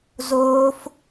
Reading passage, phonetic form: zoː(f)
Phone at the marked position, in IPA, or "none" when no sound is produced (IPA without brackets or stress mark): f